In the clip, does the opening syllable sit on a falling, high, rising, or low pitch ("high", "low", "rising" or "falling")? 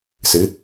rising